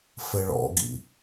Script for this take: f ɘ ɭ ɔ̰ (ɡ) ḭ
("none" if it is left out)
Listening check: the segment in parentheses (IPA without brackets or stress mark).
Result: ɡ